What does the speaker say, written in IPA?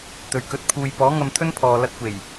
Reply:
t̪ ɵ˨˩ ɥ k ɵ˨˥ t̚ pʰ uː˨ j p ɔː˨˥ ŋ ɐ˧ m t̪ʰ ɵ˥ n pʰ ɔː˨ l ɐ˧ t̚ kʷ e˨˩ j

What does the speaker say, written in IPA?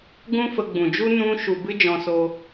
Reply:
ɡ ũ˦ f ə˧ ɡ͡b ũ˨ d͡ʒ u˦ n ũ˦ ʃ u˧ b ɨ˦ d͡ʒ ɔ̃˧ s o˧

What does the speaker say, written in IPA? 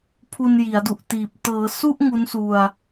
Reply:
pʰ u˧ n j i˩˦ a̯ d u˨˩ ʔ t iː˨˩ p̚ t ɤː˩˦ s u˥˩ ʔ ŋ u˦˥ n s u˧ a̯

